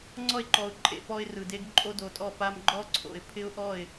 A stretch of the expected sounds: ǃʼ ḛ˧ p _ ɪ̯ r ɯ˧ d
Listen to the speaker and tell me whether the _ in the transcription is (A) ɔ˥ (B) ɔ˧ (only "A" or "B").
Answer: A